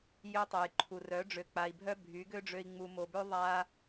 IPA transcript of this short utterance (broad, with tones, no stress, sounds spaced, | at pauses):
j ø˧ tˤ œ˨ j ǃʰ u˨ r œ˨˦ ɖ͡ʐ ø˨ k͡p a˨ i̯ bʱ œ˦ bʱ y˨˦ ɡ ø˦ ɖ͡ʐ ø˧ i̯ ŋ͡m u˨ m o˨ b ø˧ ðˤ a˧